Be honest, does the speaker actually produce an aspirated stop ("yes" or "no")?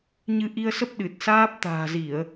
no